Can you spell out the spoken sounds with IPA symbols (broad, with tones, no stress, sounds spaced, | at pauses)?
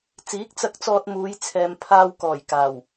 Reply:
t͡s iː˨˥ k̚ t͡s ɐ˧ k̚ t͡s ɔː˧ t̚ m uː˨˧ j t͡sʰ ɛː˨ m pʰ aː˧ w k ɔː˨˩ j k aː˨˩ w